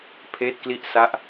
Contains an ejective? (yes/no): no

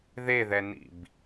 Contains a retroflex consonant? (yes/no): no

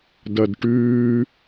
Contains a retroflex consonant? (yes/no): yes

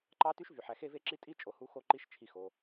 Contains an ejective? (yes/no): yes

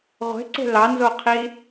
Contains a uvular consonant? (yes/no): yes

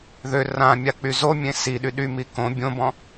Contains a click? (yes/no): no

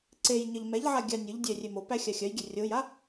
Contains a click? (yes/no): yes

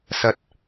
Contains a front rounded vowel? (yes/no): no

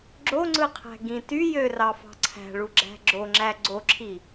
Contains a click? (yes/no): yes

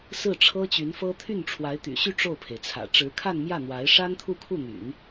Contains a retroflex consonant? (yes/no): yes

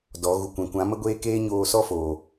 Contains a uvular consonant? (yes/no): no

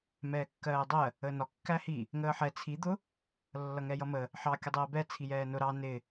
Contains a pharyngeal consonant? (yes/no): yes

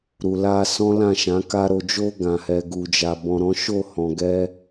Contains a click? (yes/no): no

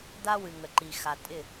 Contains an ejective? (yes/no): yes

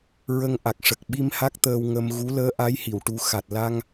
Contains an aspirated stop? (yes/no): no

